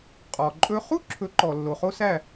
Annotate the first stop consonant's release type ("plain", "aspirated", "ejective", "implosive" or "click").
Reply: ejective